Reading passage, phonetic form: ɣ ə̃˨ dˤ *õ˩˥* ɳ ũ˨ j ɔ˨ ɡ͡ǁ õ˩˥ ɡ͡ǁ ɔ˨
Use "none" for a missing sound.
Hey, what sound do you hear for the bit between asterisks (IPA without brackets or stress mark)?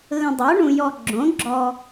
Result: o˩˥